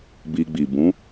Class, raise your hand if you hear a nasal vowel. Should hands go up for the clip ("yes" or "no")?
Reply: yes